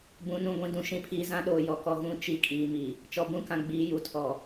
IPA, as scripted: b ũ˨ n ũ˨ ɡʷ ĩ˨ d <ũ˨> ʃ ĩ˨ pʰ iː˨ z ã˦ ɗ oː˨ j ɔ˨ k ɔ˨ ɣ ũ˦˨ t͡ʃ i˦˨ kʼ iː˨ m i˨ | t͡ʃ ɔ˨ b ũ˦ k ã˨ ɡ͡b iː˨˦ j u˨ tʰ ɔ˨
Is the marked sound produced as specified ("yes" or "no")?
yes